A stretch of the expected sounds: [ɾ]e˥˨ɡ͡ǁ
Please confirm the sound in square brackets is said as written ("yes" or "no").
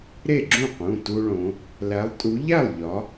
yes